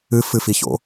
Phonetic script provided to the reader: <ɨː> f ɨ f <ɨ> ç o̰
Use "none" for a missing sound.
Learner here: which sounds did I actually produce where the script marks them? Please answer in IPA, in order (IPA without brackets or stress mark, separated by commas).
ɨ, i